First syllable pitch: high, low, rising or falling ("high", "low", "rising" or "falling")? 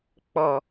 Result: low